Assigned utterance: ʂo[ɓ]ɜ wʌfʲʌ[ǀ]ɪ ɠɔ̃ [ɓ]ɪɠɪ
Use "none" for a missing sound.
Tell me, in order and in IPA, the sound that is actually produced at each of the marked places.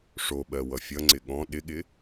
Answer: ɓ, ŋ͡ǀ, ɗ

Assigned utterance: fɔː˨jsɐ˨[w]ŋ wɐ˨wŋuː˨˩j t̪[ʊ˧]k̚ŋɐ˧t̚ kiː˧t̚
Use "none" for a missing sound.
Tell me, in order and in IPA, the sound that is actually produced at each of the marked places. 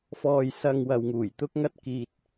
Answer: none, ʊ˧

